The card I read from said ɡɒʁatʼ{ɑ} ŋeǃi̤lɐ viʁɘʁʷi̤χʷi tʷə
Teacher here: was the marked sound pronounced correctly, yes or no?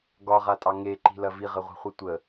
yes